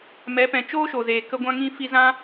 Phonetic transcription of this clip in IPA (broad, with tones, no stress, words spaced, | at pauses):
mɛ˨˦pɛ̃˨ t͡ʃoː˦ʃo˨zeː˨ kə˧ ɡʷã˦ŋĩ˦ fi˧zã˦